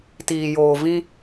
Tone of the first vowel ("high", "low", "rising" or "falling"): low